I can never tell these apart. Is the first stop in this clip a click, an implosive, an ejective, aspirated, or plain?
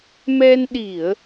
implosive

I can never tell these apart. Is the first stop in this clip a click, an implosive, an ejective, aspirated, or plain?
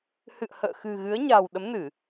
implosive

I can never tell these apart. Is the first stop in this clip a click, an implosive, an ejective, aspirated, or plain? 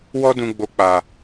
plain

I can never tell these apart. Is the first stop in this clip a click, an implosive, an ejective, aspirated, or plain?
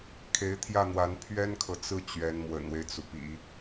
aspirated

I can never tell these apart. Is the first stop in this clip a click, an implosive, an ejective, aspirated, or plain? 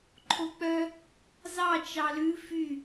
click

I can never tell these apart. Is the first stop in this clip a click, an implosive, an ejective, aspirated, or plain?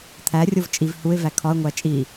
aspirated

